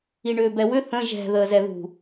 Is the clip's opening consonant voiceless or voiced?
voiced